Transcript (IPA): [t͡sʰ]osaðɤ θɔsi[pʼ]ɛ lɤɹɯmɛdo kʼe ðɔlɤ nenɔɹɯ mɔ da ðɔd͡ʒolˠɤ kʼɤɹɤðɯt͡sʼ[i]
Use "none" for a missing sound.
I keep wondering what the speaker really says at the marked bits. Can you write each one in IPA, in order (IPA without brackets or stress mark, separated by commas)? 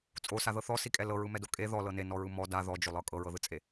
t͡sʼ, kʼ, e